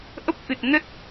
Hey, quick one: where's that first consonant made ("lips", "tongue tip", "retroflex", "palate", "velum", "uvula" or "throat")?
throat